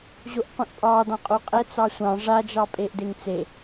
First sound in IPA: ʑ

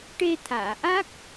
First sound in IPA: ʈ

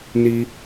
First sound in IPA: n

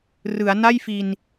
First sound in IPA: r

